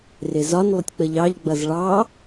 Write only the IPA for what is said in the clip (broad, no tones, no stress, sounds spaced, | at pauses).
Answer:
r ɪ z ɒ n lˠ ʊ tʲ k͡p ə ʎ ɑ ʎ ɡ͡b ʌ z ɭ ɑ